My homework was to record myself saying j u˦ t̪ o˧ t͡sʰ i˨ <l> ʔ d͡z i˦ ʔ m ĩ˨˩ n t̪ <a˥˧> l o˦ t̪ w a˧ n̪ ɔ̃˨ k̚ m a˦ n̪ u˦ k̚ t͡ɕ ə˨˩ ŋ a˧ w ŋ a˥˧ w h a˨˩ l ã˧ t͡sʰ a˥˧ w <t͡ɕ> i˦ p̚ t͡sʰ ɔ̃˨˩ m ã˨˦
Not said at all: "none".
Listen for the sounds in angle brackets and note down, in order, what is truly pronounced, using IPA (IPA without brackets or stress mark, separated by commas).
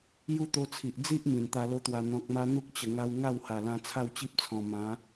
none, a˧, t͡ɕ